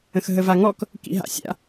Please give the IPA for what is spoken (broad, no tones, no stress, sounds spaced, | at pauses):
ə̃ x ɦ ə v a ŋ ɔ k | k ḭ ɦ a̰ sʲ a̰